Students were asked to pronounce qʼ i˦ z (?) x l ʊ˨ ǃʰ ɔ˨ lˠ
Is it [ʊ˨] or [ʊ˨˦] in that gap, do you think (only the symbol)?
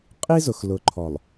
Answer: ʊ˨